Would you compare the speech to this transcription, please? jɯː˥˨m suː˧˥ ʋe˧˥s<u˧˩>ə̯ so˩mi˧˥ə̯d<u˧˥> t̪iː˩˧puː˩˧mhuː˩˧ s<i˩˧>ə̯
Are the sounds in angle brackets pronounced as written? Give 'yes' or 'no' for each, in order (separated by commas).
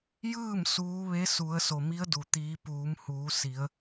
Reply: no, no, yes